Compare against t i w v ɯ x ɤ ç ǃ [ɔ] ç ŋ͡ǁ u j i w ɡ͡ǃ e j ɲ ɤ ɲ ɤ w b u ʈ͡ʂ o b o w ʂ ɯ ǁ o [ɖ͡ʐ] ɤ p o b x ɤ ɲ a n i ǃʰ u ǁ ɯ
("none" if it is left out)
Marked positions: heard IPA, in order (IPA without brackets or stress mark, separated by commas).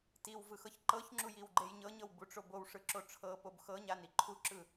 ɤ, ʈ͡ʂʰ